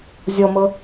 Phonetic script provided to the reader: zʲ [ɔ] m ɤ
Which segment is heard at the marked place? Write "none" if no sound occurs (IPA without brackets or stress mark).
ɔ